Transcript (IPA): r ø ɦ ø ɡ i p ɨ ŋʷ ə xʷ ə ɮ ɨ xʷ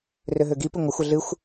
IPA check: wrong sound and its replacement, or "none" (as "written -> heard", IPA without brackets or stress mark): none